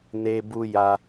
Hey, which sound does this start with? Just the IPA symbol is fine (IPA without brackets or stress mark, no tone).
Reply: n